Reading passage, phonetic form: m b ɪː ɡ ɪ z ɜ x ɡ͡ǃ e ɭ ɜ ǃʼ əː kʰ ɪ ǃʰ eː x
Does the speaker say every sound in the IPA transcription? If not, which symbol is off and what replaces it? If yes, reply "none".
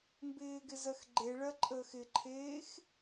kʰ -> x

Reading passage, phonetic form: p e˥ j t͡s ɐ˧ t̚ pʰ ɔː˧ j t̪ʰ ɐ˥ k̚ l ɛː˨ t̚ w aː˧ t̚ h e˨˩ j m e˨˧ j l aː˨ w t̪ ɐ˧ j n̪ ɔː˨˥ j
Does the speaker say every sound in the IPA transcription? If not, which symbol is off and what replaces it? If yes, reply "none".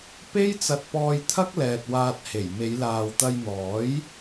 pʰ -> p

